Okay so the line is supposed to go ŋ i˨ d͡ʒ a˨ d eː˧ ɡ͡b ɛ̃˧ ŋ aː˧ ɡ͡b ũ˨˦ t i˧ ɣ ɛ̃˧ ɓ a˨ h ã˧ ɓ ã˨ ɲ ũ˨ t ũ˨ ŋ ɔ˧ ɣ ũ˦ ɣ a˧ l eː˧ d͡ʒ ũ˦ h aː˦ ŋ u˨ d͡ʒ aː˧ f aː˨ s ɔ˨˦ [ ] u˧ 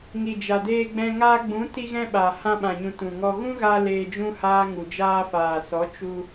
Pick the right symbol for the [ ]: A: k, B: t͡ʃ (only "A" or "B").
B